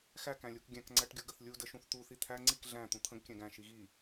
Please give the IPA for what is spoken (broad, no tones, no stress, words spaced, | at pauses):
xækæ̃lʲuk ɡʲæ̃kŋ͡ǀæʈɡʲu ɡəθlʲu dəʃũθt̪uθi t̪ʰæ ŋ͡ǀik ɮæ̃ t̪ũt̪ʰə̃ɡ kʲæ̃ɡæ̃ ʃiɣi